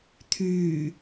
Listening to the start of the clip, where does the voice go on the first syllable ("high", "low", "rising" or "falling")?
low